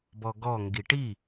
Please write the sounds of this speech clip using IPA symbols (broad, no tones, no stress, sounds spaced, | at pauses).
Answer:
b ɔ ɡ ɔ ŋ ɡ i ʈ i